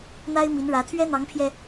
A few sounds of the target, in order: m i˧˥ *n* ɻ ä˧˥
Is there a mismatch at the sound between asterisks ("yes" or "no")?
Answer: no